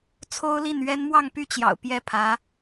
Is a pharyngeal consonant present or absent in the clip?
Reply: absent